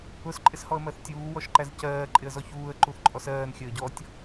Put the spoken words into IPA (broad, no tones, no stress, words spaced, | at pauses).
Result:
ʊs ǃʼɪshɔə̯mɜθtʲuː wɔʃǃæzcɜː ǃʼɪə̯zɔçuːə̯ ǃuθǃʼɔsɜːn xʲəːɟɔtʲ